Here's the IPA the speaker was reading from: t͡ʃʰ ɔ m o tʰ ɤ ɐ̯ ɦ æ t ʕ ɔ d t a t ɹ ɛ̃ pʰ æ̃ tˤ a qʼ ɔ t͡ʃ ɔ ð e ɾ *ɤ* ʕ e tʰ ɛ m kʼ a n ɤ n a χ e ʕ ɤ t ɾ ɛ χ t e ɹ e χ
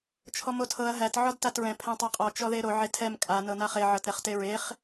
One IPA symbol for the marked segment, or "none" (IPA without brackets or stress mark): o